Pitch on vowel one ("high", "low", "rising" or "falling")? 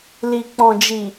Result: low